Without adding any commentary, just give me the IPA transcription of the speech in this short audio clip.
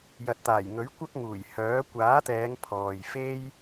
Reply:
j ɐ˨ t̚ t̪ aː˨˩ j ŋ ɵ˨˥ ɥ kʷ ɐ˥ k̚ ŋ uː˨˩ j h œː˨˥ kʷ aː˨˥ t̪ ɛː˨˧ ŋ pʰ ɔː˨ j f e˥ j

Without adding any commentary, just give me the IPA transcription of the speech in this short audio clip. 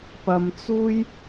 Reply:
p ɐ˨ m t͡s uː˥ j

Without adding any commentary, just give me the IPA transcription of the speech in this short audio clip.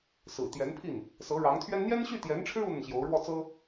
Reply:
s ɹ̩˨˩ t̪ j ɛ˧˥ n pʰ i˥˩ n | s ɤ˧˥ ɻ ɑ˧˥ ŋ t̪ʰ ɥ ɛ˥ n n̪ j ɛ˥ n ɕ y˥˩ t̪ j ɛ˧˥ n ʈ͡ʂʰ ɻ̩˥ u˥ n̪ ə˨ n ɕ j o˧˥ ʊ̯ ɻ w ɔ˥˩ t͡s ɤ˥

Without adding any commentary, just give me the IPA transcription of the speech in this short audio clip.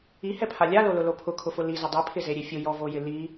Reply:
i h ɛ pʰ a lʲ a l o l ʊ l o pʰ ʊ kʰ ʊ f ʊ l i z ɪ dˤ i pʰ ɪ z e ɾʲ e fʲ ʊ j ɔ v o j ɪ l i

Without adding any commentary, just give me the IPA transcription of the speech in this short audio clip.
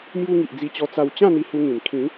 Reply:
m j u˧ ŋ i˨ ʔ d͡z i˧ t͡ɕ ɔ˧ t͡s a˧ w t͡ɕ ã˥˧ n̪ i˧ h u˧ ŋ ĩ˨˩ n kʰ ĩ˨˦

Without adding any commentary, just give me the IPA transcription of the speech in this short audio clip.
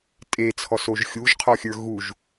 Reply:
tʼ e t͡sʰ ɔ s o ʒ xʲ u ʒ qʰ ɔ xʲ ə˞ ɣ u ʒ

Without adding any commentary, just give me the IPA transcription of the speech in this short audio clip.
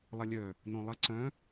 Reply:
lˠ ɐ lʲ œ | n õ lˠ ɐ ǀ œ̃

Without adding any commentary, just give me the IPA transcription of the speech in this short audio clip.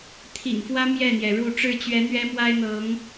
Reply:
t̪ʰ ḭ˨˩ ŋ f w ä˦ m j ɛ˥˨ n̪ j ɛ˩ ɻ u˥˨ ʈ͡ʂ ɻ̩˥˨ t͡ɕ ɥ ɛ˨˦ n̪ ɥ ɛ˦ m w a˦ ɪ̯ n̪ ɤ˨˦ ŋ

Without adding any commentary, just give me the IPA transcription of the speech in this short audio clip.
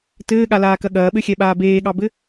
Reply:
t ɘː ɠ a l aː k ɐ ɠ ɐː ɓ ɘ xʲ ɛ ɓ aː b eː ɠ ɑ b ɘ

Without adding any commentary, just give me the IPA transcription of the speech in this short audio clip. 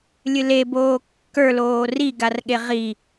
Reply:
lʲ ɨ l e b oː kː ə˞ l oː r i ɡ a r ɠ e ʁ i

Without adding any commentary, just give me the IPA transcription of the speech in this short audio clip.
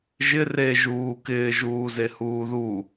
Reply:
ʒ ɪ r e ʒ uː k ɪː ʒ uː z e h uː ð u

